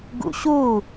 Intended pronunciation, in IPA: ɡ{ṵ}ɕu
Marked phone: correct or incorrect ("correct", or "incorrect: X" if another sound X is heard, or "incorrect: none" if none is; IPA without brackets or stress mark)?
correct